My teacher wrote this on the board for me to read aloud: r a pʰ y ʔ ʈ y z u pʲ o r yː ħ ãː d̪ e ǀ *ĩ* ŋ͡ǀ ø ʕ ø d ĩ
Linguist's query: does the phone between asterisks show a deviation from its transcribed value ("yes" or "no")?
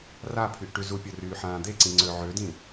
no